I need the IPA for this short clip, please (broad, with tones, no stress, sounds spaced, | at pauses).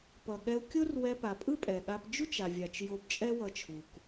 p ʌ˩ ɠ ɛ˧ u̯ kʲ o˥ r w ɛ˧ p a˩ pʼ ɯ˥ pʼ ɛ˩ ɠ a˧ p d͡ʒ u˥ t͡ʃ a˩ vʲ a˩ t͡ʃ j o˧ b t͡ʃʼ ɛ˥ w ʌ˧ t͡ʃʰ u˩ k